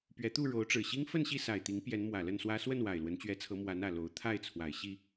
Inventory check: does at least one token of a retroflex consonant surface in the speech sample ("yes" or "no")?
yes